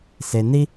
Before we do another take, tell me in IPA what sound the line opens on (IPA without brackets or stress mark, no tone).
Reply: s